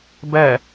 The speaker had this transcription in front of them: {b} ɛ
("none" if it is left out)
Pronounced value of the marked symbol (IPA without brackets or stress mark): b